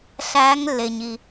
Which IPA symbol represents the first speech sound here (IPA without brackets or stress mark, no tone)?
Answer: ɬ